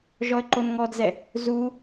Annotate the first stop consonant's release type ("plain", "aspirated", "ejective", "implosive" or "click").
click